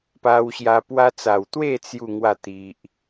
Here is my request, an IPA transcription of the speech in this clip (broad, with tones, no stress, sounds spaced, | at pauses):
p a˧ w ɕ j a˧ p w a˧ t͡s a˨˩ w t̪ w e˥˧ t͡s j u˥˧ ŋ w a˥˧ t̪ i˨ ʔ